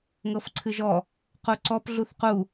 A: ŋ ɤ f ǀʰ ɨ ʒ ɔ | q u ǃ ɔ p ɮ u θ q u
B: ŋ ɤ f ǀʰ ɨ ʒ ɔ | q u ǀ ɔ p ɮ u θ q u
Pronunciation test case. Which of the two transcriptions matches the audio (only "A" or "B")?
B